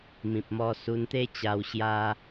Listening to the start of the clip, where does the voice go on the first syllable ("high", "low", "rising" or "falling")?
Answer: low